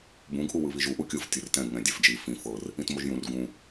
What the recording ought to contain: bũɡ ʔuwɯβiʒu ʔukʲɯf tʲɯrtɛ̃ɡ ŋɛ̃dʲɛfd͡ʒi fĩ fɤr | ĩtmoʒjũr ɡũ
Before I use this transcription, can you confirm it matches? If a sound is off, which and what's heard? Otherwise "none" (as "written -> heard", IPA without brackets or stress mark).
none